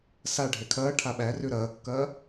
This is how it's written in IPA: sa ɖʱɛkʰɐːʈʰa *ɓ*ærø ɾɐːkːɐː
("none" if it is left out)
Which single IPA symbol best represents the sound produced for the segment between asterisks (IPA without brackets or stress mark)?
ɓ